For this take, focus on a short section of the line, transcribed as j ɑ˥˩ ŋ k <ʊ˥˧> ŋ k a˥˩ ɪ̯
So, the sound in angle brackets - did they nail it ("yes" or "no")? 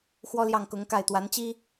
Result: no